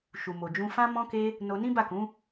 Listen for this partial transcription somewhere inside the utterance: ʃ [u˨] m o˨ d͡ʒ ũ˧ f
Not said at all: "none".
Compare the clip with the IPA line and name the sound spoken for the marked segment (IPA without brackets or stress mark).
u˨